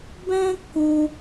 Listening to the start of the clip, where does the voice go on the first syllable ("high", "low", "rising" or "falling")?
high